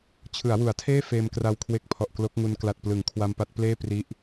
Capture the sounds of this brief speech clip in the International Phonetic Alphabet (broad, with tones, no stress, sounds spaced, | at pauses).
t͡ɕʰ ɯ˩˦ a̯ w u˩˦ a̯ tʰ eː˥˩ f eː˧ m k r a˧ w kʰ w e˦˥ k̚ pʰ ɔ˨˩ ʔ k l o˦˥ k̚ ŋ u˧ n k l a˨˩ t̚ p l ɯ˩˦ ŋ kʰ w a˧ m p a˦˥ t̚ p l eː˥˩ p r i˦˥ ʔ